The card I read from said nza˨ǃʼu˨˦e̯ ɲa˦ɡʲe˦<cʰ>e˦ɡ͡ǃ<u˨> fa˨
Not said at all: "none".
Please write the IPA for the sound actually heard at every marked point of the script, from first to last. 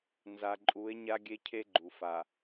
cʰ, u˨

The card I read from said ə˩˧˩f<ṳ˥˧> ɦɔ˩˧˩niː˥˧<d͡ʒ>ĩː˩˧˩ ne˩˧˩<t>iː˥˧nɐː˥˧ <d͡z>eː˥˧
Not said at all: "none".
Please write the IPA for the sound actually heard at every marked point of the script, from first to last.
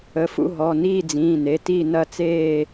ṵ˥˧, d͡z, t, t͡s

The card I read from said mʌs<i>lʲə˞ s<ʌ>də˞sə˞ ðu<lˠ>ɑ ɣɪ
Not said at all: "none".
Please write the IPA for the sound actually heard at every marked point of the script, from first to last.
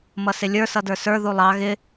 ɪ, ʌ, lˠ

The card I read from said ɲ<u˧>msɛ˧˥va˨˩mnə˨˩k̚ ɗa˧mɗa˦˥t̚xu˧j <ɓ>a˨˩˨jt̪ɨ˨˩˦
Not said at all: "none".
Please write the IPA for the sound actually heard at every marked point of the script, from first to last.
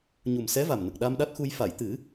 u˨˩, f

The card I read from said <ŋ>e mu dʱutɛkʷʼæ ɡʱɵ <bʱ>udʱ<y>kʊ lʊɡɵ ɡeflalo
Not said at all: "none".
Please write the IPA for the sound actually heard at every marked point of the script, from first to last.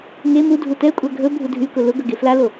ŋ, bʱ, y

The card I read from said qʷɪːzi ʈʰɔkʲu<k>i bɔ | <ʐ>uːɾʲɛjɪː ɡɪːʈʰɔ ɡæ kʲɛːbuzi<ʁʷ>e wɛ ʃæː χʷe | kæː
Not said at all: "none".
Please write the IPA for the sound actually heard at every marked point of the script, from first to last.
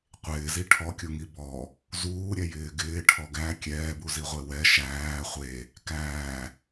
ŋ, z, ʁʷ

